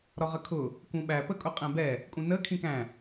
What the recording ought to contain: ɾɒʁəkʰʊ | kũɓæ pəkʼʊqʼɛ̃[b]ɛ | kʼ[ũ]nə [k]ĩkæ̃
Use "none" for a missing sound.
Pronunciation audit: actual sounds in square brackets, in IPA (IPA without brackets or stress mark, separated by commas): b, ũ, kʰ